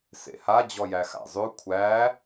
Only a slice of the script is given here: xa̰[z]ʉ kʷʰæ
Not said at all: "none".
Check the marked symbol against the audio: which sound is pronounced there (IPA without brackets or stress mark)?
zˤ